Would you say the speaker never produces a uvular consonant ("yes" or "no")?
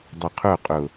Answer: no